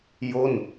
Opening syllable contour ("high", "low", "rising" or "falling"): falling